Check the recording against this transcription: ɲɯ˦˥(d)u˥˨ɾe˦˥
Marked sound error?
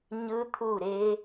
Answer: yes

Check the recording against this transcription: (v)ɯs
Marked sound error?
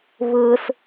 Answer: yes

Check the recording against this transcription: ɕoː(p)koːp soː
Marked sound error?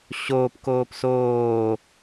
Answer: no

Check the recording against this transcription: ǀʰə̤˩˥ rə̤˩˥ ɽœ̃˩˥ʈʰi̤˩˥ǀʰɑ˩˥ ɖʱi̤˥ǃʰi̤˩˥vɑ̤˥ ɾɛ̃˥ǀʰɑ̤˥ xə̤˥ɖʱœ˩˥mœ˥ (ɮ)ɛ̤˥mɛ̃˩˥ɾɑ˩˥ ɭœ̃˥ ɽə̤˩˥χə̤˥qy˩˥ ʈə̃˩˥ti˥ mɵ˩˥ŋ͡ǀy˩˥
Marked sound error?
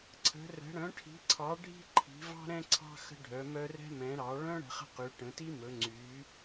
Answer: yes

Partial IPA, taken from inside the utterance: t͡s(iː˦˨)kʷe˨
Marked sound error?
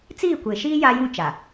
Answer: no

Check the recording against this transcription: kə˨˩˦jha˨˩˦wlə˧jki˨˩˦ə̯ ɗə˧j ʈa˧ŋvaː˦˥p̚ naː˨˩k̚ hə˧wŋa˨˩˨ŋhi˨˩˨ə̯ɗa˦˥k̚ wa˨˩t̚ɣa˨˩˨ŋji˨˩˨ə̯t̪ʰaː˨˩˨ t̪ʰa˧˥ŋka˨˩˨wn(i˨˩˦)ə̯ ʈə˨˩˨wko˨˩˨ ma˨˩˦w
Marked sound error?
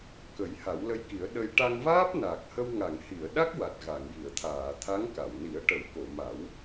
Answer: no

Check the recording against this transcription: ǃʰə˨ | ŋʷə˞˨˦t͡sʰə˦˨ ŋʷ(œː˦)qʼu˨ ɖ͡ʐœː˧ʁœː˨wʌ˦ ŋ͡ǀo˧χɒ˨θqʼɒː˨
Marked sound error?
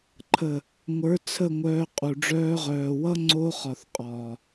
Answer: yes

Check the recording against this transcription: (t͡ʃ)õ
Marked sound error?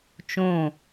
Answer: no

